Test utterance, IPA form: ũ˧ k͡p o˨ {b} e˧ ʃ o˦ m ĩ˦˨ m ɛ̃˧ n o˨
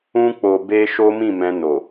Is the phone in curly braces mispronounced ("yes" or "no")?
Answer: no